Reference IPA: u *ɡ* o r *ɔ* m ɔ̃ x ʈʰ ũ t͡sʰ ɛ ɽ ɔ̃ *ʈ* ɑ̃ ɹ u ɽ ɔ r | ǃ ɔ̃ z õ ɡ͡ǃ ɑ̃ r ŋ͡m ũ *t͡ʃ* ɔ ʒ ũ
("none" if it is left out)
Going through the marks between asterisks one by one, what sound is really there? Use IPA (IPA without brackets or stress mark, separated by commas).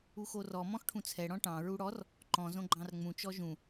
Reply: x, ɔ, ʈ, t͡ʃ